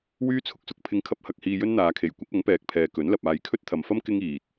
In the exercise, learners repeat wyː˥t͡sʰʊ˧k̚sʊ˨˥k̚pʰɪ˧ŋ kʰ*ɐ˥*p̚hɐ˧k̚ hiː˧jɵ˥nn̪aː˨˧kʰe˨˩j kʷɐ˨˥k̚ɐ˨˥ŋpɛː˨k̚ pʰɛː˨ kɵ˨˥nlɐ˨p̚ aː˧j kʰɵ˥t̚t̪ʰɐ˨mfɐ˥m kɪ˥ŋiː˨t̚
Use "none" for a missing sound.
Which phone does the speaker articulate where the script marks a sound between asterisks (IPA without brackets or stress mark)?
ɐ˥